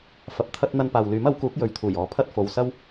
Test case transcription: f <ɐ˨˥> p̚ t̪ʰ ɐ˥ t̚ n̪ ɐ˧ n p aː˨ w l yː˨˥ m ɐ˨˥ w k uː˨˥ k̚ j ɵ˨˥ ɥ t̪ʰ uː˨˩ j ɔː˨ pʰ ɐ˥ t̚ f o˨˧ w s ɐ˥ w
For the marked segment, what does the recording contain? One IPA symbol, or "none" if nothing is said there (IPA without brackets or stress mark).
ɐ˨˥